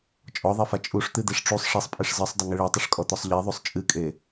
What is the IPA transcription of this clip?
t͡ʃʼɔðˤefa t͡ʃʼuʂt̪ɨd̪eʂ ʈ͡ʂusˤ ʂisˤpʼeʂ zɨsˤdˤɘŋɨ ɭetˤɐʂkʼɔt̪ɔsˤ ʎeðˤusˤ t͡ʃʼɨkʼe

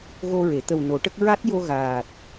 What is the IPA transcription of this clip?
ɣo˧ɹe˨˩˨ t̪ə˨˩w no˨˩˦ʈə˦˥k̚ ɹa˦˥t̚ jo˧ɣaː˨˩t̚

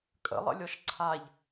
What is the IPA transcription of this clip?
kʼə̰lˠə̰lʲɔʃ ǀʰaʎ

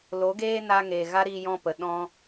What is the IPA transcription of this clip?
lo˨˦ɡeː˦ na˧ŋe˨ ɣa˦ɾiː˧jɔ̃˧ pə˨ ɗɔ̃˧

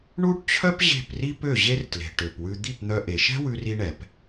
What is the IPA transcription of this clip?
ɳu˥ʈt͡ɕʰœ˥p ʑe̤˥˩pri˥pø˥˩ ʑe˥rtle̤˩ʈø˩pwʉ˧ d̪i˥˩pn̪œ˧ʔe˩ ʃɛ̤˥wʉ˧ri˧ɳɛ˩p

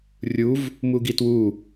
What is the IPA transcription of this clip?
rʲuv | muɡitwu

